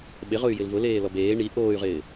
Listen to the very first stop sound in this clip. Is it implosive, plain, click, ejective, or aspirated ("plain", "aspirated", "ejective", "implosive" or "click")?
implosive